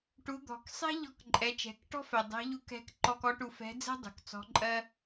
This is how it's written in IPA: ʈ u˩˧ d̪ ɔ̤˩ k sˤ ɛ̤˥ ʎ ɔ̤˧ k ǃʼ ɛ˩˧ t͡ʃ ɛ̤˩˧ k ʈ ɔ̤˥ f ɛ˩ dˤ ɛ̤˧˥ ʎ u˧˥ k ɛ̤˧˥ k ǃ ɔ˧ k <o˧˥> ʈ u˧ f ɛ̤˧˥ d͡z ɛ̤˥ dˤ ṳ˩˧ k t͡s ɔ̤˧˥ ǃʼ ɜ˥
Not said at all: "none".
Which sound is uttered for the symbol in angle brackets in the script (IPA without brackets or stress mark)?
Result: ɔ˧˥